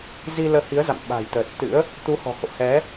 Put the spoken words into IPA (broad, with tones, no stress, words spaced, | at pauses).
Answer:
zi˧ləː˧hi˨˦ə̯za̰˧˨m ɓa̤˨˩jt̪əː˨˩t̚t̪ɨ̰˧˥ə̯ | t̪u˨˦ hɔ̤˨˩ho̰˧˨hɛ˨˦